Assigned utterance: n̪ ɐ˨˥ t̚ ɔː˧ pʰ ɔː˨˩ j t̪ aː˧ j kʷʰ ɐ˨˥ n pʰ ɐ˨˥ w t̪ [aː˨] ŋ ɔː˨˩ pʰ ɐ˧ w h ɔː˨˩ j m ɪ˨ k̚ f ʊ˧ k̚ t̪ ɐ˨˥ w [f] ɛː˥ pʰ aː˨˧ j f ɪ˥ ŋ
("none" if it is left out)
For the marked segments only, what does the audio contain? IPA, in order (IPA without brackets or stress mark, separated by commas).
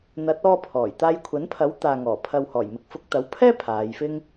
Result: aː˨, pʰ